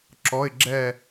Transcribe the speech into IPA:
ǁ ɔ˧˥˧ ɪ̯ ɡ͡ǁ ɛ˥˧

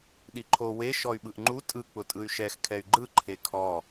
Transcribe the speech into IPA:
ɗ i ǃʰ o w e ʃ ɔ y̯ ɓ ɯ ʔ ŋ͡ǃ u tʼ ɯ k͡p ʊ tʼ ɯ y̯ ʃ ɛ x kʰ ɛ y̯ ɡ͡ǃ ɯ ǃʰ e kʰ ɔ

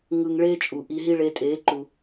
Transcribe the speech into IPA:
ŋ ɯ˧ ŋ ɭ eː˦ t͡ʃʼ u˨ ʔ i˧ ɦ i˦ ɭ e˧ tʼ eː˨˦ ǃ u˨

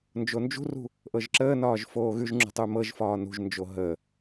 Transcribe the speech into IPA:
n d͡ʒ o n d͡ʒ ṳ r ṳ | ʔ ɤ ʒ ǁ əː n ɒː ʒ f oː ɣ ʉ ʒ ŋ͡ǁ ṳ tˤ ʉ m ɤ ʒ f ɒː n ṳ ʒ n d͡ʒ o ɦ ə

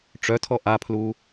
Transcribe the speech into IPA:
ʈ͡ʂ œ tʰ ɔ ʔ a pʰ l u

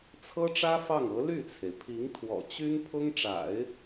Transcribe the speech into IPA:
t͡sʰ ɤ˥ ʈ͡ʂ ä˥ f ɑ˥˩ ŋ ɤ˧˥ l y˥˩ t͡sʰ e˩ ɪ̯ pʰ i˧˥ ŋ t̪ʰ w ɔ̰˨˩ t͡ɕ y˥ n pʰ ʊ˥ ŋ ʈ͡ʂ a̰˨˩˦ ɪ̯

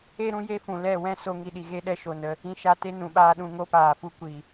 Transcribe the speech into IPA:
e˦ ɾ ũ˦ j e˦ f ũ˨ l ɛ˦˨ w ɛ̃˦ s o˦ ŋ i˦ ɗ i˧ ɣ e˦ ɗ ɛ˦ ʃ o˨ n ə˧ | ĩ˧ ʃ a˧ t e˦ n ũ˨ ɓ aː˦ ɗ ũ˧ ŋ o˦ p aː˨ f u˦ kʷ i˨

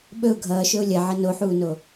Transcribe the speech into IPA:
ɓ ɵ ʊ̯ ɡʱ ʌː ʃ ɵ ʊ̯ lʲ ɐ ʕ ʌ n o ħ uː n o

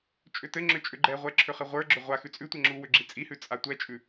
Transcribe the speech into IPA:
t͡ʃʼ ʏ t ɘ ŋ͡ǁ ʏ t͡ʃʼ ʏ ɡ͡ǃ ɛ ʁʷ ɛ ǁʰ ʏ χ ɘ ʁʷ ə˞ ɡ͡ǁ ʏ ʁʷ a x ʉ t͡sʼ ʉ tʷ ɛ ŋ͡ǁ u w ʏ ɡ͡ǁ i t͡sʼ i h ʉ t͡sʼ a tʷ ɛ t͡ʃʼ ʉ

